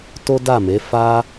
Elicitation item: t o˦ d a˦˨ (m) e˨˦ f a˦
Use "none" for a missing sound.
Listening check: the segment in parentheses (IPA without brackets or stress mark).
m